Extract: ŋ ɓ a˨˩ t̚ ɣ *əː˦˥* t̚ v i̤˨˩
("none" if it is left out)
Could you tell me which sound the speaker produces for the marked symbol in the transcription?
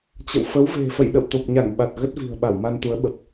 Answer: ə˦˥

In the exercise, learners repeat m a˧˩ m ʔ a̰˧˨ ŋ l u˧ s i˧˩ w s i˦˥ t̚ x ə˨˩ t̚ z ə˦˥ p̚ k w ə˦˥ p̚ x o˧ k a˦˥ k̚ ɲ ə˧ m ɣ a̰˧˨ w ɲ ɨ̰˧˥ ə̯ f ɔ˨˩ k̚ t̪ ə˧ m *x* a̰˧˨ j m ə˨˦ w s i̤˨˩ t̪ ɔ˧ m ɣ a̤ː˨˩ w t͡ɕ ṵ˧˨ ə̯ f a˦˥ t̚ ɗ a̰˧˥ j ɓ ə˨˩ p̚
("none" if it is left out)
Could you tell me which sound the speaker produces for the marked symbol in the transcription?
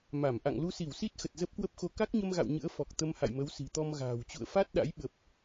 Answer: h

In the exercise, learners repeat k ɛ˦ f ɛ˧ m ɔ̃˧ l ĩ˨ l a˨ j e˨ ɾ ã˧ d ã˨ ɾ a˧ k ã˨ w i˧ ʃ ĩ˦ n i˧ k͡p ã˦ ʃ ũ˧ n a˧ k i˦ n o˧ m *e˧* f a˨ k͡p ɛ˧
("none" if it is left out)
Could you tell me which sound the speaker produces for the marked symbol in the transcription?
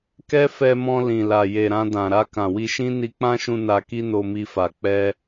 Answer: i˧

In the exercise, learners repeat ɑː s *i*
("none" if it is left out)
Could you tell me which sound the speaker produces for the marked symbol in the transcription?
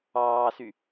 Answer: y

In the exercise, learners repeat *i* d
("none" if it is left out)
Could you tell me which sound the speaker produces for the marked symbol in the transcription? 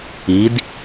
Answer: i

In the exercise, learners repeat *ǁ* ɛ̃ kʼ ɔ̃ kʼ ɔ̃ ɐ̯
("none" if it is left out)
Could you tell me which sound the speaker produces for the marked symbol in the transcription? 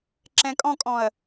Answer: ǁ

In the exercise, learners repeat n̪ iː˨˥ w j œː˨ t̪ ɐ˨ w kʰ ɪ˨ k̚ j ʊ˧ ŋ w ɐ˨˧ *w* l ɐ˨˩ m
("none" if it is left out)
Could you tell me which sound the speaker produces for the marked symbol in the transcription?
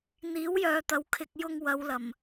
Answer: w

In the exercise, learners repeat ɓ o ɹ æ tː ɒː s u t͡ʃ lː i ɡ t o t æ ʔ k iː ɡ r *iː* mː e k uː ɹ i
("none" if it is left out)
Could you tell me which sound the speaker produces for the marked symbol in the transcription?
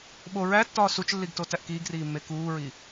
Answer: iː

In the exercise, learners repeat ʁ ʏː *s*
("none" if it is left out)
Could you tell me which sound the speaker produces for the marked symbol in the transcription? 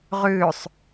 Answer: sˤ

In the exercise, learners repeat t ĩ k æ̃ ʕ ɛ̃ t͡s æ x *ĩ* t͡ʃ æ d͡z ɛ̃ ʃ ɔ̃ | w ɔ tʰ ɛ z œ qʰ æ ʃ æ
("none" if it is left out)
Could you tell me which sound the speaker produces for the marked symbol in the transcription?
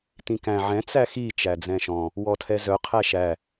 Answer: i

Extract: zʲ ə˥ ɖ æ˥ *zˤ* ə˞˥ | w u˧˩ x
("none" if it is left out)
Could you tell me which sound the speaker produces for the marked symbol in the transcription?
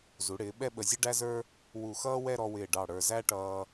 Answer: z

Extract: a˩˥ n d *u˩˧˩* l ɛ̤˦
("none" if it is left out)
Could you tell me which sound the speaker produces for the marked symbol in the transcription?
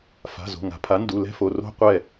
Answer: u˩˧˩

